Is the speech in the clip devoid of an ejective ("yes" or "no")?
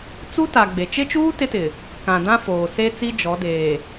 yes